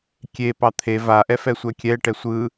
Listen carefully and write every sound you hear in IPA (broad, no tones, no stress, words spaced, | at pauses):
kʲepɑ t̪ʰe vaʔɛfɛsʷɛ kʲɛʈɛ sʷɯ